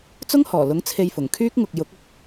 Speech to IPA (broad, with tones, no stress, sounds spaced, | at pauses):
t͡s ʊ˥ ŋ h ɔː˨˩ l ʊ˨˥ ŋ t͡sʰ e˧ j f ʊ˨˩ ŋ kʰ yː˥ k̚ ŋ ʊ˨ k̚ j ʊ˨˥ k̚ ʊ˨ k̚